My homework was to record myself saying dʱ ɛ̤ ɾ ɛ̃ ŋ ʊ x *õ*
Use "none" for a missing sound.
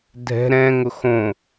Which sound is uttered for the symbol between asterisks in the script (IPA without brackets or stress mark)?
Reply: õ